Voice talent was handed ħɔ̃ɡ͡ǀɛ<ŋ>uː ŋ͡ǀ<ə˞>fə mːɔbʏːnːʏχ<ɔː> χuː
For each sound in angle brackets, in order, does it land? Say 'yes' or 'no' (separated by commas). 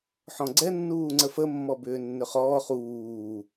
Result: no, no, yes